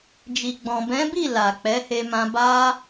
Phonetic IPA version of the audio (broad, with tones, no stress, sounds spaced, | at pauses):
d͡ʒ i˨ ɡ͡b ɔ̃˨ b ɛ̃˨˦ b i˦˨ l a˨ k͡p ɛ˨˦ h e˧ m ã˧ b a˦